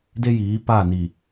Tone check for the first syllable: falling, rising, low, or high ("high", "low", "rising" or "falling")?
high